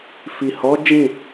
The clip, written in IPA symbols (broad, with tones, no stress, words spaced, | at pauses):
fi˨hɔ˨˦ d͡ʒĩ˦˨